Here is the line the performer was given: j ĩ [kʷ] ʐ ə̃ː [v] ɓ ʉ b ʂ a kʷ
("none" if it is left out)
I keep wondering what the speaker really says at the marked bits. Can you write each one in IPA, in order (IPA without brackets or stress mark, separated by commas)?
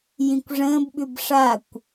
kʷ, b